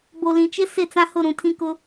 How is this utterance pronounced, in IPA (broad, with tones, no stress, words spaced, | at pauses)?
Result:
bo˨lĩ˨t͡ʃɪ˦ sɪ˦˨t͡sã˦hʊ˦˨ ɾũ˨ tʰĩ˦kʊ˦